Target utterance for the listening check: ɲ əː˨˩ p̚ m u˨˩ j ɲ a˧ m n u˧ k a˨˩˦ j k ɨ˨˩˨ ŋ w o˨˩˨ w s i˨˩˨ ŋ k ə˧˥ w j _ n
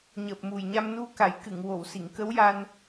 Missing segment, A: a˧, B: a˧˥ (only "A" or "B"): A